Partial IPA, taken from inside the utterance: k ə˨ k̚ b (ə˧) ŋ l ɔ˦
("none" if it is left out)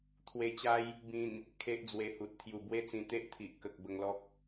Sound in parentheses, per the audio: ə˧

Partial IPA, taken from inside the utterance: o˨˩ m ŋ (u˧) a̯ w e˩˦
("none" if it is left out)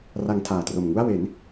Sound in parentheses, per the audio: u˥˩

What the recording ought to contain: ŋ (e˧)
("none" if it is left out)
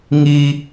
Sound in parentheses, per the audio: i˧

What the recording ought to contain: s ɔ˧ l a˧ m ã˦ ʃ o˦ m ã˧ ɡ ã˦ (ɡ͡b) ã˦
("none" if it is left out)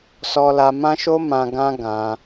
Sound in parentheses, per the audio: ɡ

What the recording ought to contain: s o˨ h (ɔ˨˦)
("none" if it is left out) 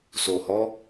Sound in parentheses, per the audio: ɔ˨˦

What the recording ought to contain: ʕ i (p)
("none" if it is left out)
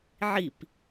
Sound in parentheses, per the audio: p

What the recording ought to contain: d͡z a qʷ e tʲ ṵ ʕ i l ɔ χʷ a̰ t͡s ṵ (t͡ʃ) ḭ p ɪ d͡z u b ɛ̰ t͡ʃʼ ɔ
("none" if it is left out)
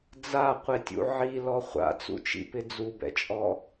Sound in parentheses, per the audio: t͡ʃ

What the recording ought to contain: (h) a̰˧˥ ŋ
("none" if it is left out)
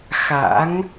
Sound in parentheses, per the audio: x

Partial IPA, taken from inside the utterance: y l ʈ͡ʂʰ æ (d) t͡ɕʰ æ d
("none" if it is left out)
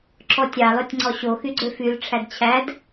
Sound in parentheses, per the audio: d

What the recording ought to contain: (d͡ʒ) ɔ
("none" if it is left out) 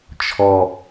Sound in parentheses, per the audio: t͡ʃʰ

